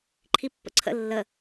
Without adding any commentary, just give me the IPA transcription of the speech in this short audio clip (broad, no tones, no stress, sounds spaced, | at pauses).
ǃʰ i pː ə̰ ǀʰ ə̰ lː ə